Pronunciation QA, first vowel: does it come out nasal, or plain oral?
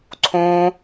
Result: nasal